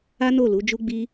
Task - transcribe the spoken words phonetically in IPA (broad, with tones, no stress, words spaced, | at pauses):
a˦no˦˨ lu˨˦d͡ʒu˦ɡ͡bi˦